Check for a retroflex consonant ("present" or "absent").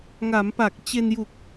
absent